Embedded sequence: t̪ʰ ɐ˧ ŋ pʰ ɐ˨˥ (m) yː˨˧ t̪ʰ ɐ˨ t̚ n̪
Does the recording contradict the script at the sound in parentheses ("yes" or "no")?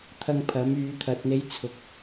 no